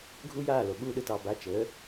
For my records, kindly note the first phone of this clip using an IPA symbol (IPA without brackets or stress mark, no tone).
ɡʱ